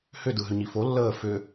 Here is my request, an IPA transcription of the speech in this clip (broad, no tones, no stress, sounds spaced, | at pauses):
h ʏ d ɯ ɦ ʏ ɲ i f o lː əː f ʏ